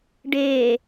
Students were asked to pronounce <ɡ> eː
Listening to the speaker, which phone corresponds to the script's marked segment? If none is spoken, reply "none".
ɖ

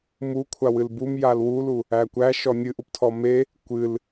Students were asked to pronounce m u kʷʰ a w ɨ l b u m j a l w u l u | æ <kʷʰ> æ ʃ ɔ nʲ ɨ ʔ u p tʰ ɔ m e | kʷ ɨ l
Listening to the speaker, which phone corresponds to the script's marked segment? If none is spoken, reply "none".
kʷ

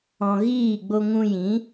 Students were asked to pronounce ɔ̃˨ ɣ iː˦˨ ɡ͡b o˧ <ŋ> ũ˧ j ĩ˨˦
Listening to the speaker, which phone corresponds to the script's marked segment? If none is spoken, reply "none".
ŋ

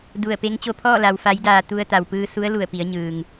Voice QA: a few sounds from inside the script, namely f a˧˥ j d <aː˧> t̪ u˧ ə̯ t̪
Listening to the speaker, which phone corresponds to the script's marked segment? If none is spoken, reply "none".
aː˧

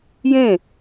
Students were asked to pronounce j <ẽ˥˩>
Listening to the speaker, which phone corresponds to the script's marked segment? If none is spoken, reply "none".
ẽ˥˩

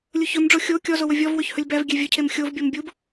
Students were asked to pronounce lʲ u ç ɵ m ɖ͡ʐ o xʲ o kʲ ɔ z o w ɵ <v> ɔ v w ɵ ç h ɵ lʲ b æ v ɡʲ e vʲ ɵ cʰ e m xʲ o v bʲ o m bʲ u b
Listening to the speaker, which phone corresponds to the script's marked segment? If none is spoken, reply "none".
vʲ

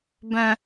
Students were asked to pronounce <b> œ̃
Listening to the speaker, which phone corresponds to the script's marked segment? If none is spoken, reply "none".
b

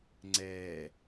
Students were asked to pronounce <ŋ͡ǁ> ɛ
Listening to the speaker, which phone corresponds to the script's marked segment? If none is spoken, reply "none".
ŋ͡ǀ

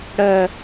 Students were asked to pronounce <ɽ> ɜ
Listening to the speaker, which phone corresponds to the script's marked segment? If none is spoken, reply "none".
ɽ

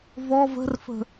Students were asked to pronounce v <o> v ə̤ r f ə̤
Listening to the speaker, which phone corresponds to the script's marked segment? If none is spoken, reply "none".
ɔ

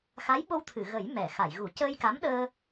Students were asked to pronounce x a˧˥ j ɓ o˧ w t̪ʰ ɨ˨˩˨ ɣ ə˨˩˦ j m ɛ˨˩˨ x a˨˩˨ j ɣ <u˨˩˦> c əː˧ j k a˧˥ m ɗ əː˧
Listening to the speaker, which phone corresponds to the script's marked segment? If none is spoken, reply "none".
u˨˩˦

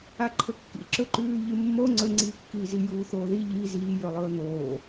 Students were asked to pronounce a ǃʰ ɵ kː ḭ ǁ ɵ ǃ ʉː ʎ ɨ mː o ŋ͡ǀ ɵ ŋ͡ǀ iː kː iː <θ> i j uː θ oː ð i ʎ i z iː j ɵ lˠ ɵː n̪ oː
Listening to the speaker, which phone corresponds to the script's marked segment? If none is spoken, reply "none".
z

